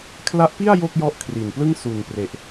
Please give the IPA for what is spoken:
kʰ l a˦˥ ʔ p i˥˩ a̯ j o˥˩ k̚ j ɔ˦˥ ʔ kʰ r i˨˩ n p l ɯ˥˩ ŋ s u˨˩ n p r e˨˩ ʔ

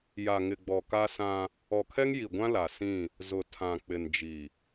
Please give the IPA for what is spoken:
j a˨ ŋ ɪ˨ ɡ͡b ɔ˨ k a˦ s ã˦ | ɔ˨ kʰ ɛ˦ ŋ j i˨ ɡʷ ã˦ l a˨ s ĩ˦˨ | z ʊ˨ tʰ ã˨ k͡p ɪ˨ n d͡ʒ i˨

